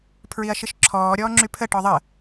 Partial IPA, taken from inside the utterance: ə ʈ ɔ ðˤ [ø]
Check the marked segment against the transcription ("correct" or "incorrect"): incorrect